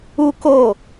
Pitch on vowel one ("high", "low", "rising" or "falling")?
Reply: high